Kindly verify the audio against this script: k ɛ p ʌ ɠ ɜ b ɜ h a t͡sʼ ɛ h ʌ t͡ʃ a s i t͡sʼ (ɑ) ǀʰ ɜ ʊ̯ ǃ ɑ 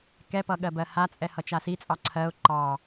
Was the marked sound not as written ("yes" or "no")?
no